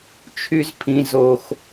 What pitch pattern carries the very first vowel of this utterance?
high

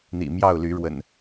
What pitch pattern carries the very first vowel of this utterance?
low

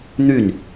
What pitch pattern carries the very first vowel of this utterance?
falling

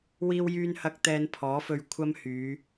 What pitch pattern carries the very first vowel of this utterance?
high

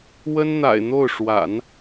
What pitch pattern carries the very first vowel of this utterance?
high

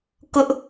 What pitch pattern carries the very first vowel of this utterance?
high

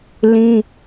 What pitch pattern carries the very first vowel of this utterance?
high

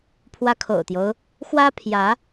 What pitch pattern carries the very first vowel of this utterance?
high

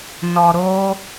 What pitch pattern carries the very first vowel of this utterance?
low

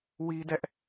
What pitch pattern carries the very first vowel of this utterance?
high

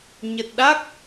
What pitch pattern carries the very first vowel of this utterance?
low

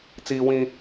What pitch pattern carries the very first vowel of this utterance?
high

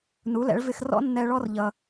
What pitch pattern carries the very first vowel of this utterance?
rising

